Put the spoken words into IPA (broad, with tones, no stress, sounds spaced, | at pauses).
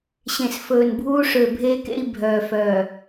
ɕ ẽ˨ s f ɵː˨ n bʱ uː˦ ʂ ø˨ bʱ e˦ k ḛ˦ i̯ bʱ œː˨ f œː˨